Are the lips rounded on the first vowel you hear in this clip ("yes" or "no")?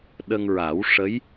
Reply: no